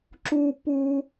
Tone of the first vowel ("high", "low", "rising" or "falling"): high